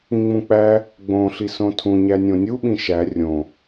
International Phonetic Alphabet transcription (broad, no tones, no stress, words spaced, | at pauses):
ĩŋ͡mũk͡pæ | ɡ͡bõ ɬisõtʰũ ɲænʲõnʲu ɓĩʃæ rʲõ